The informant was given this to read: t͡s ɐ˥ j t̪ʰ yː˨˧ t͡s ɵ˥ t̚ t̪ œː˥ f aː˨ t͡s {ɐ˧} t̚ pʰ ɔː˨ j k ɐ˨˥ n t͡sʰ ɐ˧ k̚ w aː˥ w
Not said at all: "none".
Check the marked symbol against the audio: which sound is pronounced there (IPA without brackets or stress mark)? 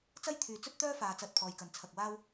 ɐ˧